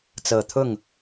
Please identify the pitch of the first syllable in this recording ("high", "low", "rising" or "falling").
low